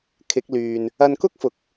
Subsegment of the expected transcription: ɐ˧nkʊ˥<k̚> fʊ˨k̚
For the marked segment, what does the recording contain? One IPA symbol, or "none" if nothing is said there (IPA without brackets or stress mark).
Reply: k̚